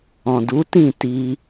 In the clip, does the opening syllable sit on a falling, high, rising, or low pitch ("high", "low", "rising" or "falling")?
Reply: low